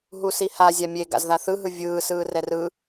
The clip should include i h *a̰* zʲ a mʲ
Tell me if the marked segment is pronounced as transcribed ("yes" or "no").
no